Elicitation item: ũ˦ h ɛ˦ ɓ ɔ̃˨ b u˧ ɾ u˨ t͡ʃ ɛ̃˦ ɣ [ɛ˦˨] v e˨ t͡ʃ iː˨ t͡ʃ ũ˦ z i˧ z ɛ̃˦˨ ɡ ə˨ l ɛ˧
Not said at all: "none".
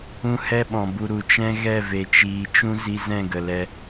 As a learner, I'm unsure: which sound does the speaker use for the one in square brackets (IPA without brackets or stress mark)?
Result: ɛ˦˨